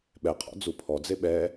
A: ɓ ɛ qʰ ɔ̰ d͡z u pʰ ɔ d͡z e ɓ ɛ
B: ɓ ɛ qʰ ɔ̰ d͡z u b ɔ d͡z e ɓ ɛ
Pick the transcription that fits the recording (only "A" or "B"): A